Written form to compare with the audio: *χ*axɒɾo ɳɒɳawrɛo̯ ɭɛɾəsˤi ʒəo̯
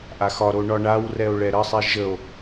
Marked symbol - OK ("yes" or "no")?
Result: no